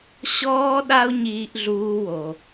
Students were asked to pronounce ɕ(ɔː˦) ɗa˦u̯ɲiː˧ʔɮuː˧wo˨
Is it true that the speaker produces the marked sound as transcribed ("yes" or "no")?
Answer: yes